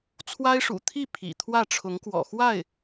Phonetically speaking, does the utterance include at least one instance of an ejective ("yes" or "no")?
no